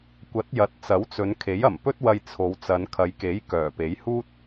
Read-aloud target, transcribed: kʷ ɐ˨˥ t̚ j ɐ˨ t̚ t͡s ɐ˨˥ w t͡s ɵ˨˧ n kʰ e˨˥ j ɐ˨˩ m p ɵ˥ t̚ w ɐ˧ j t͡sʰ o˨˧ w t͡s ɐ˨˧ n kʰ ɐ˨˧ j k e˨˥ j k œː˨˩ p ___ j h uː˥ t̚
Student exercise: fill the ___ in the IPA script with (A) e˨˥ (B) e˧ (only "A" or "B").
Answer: A